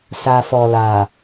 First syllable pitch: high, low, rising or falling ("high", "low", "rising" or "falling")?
low